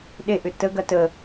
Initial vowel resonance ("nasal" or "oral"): oral